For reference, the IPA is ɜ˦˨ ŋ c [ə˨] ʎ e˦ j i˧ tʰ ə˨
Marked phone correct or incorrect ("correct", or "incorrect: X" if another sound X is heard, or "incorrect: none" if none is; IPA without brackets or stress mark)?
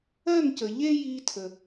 correct